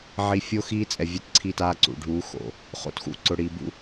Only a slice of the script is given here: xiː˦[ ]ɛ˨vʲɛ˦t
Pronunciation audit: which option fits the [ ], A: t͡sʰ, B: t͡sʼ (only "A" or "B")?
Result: B